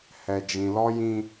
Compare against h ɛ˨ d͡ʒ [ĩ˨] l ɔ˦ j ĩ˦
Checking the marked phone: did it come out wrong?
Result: no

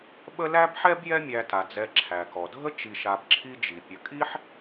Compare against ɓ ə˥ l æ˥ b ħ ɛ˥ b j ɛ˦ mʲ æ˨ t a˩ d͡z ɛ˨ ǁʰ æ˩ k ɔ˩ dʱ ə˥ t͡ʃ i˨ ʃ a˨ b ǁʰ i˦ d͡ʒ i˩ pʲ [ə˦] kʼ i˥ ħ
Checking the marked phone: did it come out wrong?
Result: yes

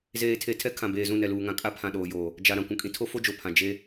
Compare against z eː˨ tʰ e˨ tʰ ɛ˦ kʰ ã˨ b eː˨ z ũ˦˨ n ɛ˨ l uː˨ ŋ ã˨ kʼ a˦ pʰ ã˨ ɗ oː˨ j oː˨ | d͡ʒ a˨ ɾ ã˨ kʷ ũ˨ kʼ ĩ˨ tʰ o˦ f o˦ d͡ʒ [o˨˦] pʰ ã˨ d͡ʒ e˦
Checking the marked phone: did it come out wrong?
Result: yes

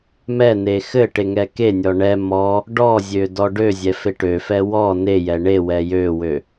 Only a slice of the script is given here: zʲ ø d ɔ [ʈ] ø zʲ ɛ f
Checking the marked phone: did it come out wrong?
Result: yes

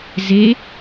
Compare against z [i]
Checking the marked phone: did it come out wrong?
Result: yes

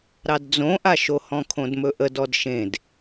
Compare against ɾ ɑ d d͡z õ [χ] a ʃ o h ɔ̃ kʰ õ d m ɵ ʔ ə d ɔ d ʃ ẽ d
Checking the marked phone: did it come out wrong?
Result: yes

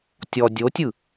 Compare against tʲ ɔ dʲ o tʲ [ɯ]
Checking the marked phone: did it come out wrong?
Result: no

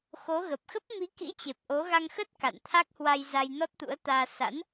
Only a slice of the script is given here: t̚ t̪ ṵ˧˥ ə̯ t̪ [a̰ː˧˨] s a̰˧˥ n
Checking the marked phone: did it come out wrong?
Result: yes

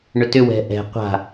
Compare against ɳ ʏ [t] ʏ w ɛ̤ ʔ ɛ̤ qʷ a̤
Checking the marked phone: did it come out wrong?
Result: no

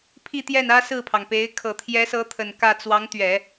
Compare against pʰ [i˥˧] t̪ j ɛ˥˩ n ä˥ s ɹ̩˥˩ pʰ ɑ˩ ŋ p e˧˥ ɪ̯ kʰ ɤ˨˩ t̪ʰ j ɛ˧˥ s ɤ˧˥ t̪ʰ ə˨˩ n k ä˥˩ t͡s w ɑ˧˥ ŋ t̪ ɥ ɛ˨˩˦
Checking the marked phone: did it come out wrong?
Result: no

